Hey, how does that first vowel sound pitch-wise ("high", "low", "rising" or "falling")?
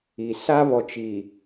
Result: low